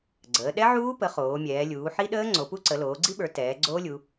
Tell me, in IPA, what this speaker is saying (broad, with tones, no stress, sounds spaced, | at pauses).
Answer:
ɡ͡ǀ əː˩˧ ɗ ɛ˦˥ ʕ uː˦˥ p ə˩˧ χ oː˩˧ mʲ ɛː˩˧ lʲ uː˩˧ ħ i˦˥ ɗ əː˦˥ ŋ͡ǀ o˩˧ p u˦˥ ǀ ə˩˧ l oː˩˧ ɡ͡ǀ i˦˥ ɓ ə˞˩˧ t ɛː˩˧ ɡ͡ǀ oː˦˥ lʲ u˩˧